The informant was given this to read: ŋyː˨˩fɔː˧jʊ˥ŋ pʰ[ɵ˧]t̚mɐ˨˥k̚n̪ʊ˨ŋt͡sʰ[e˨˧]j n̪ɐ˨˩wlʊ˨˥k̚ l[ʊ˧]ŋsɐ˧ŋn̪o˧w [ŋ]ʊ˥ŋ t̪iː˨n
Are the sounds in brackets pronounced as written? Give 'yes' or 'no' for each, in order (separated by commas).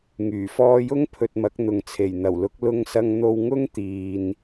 yes, no, yes, yes